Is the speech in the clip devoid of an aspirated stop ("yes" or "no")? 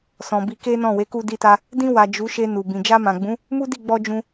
yes